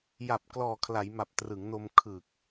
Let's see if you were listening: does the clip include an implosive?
no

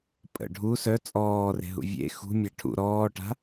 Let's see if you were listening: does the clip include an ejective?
yes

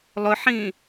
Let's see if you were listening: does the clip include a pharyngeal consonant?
yes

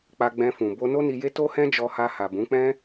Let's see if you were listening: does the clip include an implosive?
no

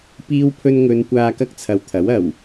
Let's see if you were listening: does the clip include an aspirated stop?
yes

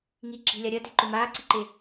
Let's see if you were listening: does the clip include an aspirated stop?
no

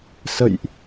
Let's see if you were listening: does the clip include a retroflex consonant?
no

